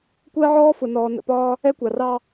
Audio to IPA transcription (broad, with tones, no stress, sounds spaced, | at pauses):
kʷ ɜː˦ ʕ ɔː˦ f ʊ˨ n ɔː˨ n ə̰˨ p ɒː˦ | ɛ˦ kʷ ɑ˨ r ɑ˦